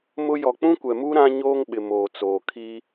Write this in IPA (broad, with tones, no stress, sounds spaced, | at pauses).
m ʊ˦ j ɔ˨ k͡p ũ˦ kʷ ɛ˨ m u˦ ɾ ã˦ ɲ oː˦ ŋ ɓ ɪ˨ m oː˨ t͡s oː˨ kʰ i˦